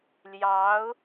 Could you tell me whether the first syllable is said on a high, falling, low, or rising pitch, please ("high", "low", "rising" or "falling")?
rising